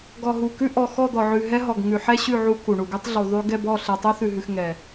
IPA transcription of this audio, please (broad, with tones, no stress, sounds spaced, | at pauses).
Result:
ɡ ɔ˨ ɦ u˨ k ʉ˦ ʔ ɔ˨ x ɔ˦˨ d̪ ɔ˨ ʕ ʉ˨ ɦ ɛ˦ ɦ ɔ˨ ɡ ŋ ʉ˨ ħ ɛ˦ ɕ ʉ˦˨ ʕ u˦ k u˨ ɳ u˨ ɡ ʉ˦ tˤ ɮ u˨ ðˤ ʉ˦ ɡ ɛ˦˨ b ɔ˦˨ ɬ ɛ˨ tˤ u˦ θ ʉ˨ ɦ ʉ˨ x ŋ ɛ˨